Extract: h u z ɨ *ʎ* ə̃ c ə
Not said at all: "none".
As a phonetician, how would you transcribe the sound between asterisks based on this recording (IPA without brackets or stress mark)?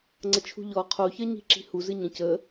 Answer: ɲ